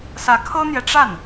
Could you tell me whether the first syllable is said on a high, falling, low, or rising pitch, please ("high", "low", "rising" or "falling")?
rising